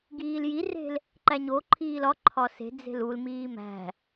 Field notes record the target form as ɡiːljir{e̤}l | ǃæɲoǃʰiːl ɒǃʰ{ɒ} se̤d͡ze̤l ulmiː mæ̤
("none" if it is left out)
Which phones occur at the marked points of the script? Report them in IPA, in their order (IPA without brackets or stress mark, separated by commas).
e̤, ɒ